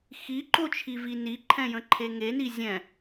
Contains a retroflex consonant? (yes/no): no